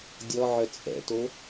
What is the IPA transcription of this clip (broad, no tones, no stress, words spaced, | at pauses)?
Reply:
dʲɔʕœ t͡sʼɛ̰to